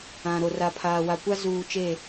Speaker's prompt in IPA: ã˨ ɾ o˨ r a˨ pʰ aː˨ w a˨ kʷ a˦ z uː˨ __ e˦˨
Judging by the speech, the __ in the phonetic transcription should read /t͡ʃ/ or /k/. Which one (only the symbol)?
t͡ʃ